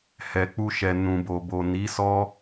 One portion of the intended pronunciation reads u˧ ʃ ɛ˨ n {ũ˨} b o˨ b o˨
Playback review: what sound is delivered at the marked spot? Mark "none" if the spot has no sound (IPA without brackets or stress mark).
ũ˨